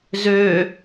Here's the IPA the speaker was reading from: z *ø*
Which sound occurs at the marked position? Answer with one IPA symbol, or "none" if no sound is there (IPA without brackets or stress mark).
ø